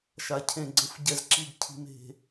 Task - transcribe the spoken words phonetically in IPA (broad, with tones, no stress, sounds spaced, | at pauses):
ʃ a˨ cʰ ẽ˨ ɡ͡ǀ ə̃˨ f ɟ ɛ˨ z ǁ i˨ ɡ cʰ i̤˨ m e̤˨